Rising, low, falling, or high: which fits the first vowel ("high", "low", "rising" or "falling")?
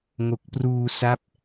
low